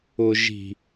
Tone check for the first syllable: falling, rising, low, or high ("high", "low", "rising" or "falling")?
low